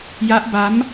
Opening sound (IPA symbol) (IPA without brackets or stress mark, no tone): j